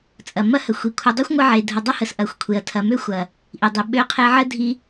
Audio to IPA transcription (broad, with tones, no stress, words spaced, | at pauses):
t͡sʼɐ˨mɐ˦hə˨ xʷi˨kʷʰɐ˧ dˤø˦xʷŋʷə˧ʕe˨dʱə˨ dˤə˦hə˨s ʔɐ˨˦xʷkʷʰe˨ɐ̯ tʰɐ˨mø˦xʷɐ˨ | ʔi˨dˤi˨ ɓø˧qʰe˧ʕə˦ dʱi˧